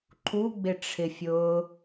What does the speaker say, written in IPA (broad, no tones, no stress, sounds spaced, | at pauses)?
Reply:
ǃʰ u ɡ͡b ɪ ʈ͡ʂʰ ɪ fʲ ʊː